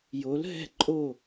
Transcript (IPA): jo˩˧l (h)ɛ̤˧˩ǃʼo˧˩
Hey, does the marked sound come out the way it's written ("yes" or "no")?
no